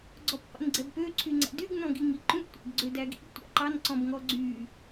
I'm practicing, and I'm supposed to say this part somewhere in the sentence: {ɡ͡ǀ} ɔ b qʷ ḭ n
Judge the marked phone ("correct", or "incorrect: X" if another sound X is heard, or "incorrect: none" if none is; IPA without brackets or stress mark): correct